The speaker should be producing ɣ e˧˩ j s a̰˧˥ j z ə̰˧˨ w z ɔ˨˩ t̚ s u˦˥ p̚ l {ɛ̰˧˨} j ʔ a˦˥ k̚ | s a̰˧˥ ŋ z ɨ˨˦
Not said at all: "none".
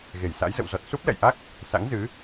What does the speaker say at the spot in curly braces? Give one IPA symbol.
ɛ̰˧˨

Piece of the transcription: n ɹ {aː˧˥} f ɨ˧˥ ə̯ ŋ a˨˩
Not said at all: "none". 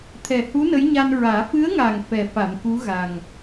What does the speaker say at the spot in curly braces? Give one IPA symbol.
aː˨˩˦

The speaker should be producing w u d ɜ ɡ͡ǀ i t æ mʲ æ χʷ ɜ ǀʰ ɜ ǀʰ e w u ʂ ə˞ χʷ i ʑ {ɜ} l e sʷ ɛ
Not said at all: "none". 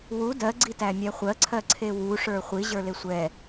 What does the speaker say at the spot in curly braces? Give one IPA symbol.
ə˞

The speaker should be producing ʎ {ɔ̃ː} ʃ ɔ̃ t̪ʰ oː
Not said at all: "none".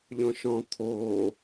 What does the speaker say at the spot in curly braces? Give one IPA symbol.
ɔ̃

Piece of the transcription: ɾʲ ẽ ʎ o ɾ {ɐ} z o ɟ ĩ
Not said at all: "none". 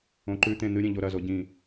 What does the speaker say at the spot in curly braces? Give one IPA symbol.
ɐ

